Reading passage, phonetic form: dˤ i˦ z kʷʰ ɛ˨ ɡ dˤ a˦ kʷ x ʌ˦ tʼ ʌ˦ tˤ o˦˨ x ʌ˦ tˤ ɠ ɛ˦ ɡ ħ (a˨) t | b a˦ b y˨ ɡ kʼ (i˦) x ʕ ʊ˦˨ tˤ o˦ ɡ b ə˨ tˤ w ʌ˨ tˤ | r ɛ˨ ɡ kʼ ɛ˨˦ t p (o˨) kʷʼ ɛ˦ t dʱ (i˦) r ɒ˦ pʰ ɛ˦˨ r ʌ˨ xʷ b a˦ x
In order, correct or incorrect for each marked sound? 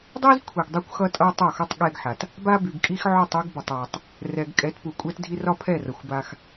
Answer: correct, correct, incorrect: u˨, correct

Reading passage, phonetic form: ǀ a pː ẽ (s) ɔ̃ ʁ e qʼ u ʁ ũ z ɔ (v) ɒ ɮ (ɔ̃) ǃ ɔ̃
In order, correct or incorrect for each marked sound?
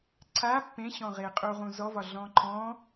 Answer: incorrect: ɕ, correct, correct

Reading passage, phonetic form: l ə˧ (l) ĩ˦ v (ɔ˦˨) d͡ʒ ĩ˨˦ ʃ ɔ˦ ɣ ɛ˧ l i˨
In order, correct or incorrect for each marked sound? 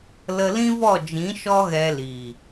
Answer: correct, correct

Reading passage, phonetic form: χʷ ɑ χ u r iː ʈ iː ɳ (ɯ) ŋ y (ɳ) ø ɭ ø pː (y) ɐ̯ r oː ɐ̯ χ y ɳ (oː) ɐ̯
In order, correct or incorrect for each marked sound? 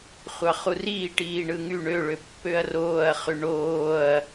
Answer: correct, correct, incorrect: ø, correct

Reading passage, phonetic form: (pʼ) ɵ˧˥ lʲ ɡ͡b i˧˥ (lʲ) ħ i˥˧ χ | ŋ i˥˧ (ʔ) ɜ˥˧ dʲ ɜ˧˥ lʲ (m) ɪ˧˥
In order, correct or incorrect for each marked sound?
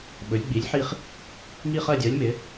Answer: incorrect: ɓ, correct, incorrect: χ, correct

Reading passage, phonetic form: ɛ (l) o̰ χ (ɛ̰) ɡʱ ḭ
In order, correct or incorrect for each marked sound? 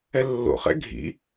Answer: incorrect: lː, correct

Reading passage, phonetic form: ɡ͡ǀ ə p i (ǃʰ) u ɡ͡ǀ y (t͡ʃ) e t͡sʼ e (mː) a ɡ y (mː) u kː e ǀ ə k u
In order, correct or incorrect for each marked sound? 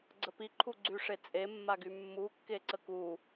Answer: correct, incorrect: ʂ, correct, correct

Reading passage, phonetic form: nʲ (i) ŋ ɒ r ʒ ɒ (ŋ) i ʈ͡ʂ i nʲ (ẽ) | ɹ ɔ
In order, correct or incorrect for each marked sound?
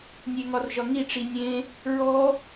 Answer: incorrect: e, correct, correct

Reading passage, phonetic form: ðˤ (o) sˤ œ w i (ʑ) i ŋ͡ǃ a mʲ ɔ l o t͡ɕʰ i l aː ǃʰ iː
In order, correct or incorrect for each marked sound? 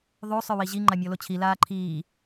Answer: correct, correct

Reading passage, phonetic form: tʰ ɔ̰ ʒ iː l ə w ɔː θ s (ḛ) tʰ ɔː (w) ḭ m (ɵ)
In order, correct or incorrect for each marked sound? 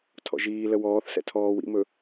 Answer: incorrect: ɛ̰, correct, correct

